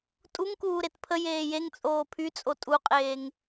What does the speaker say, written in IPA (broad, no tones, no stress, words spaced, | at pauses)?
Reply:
tʼuŋkuː ɾetpʰə jeːjeŋ t͡sʼoːpʰyt͡sʼo tʼuqʼeːŋ